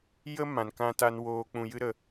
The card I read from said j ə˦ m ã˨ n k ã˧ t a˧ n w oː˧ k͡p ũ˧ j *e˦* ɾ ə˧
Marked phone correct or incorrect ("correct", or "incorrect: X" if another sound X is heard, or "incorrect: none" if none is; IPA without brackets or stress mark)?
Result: incorrect: ɨ˦